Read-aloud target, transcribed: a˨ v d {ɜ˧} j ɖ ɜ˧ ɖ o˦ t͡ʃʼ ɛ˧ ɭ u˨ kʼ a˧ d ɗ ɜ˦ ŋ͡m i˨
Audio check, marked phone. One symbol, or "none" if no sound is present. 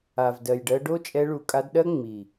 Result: ɜ˨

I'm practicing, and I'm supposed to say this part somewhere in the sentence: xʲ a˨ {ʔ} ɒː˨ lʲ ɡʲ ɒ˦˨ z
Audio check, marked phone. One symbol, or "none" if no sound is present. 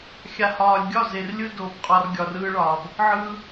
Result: h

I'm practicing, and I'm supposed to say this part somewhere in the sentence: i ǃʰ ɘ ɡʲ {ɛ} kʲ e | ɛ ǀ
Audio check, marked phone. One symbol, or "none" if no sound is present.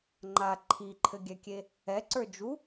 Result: ɛ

